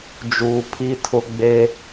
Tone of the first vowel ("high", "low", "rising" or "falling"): low